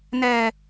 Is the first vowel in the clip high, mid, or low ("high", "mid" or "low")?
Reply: mid